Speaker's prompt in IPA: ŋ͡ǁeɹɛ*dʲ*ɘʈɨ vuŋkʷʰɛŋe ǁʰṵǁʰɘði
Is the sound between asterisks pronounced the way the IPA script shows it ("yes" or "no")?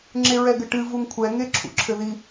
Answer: no